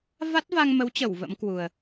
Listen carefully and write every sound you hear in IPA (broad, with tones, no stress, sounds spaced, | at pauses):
v a˦˥ t̚ v a˧ ŋ m ə˨˦ w t͡ɕ ə˧˩ w v ə̰˧˥ m k w u˨˩ ə̯